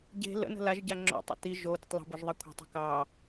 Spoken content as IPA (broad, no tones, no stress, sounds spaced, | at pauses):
ɟ e̤ l ə̰ n ə̤ l a ʒ ɟ a ŋ͡ǁ o̰ tˤ ə̰ t i ʒ o d ə̤ tˤ l ə̤ b o ʒ ðˤ ɑ kʷʰ e̤ tˤ i̤ k ɑ